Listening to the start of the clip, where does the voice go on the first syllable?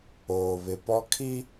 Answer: low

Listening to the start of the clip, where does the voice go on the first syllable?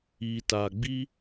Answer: low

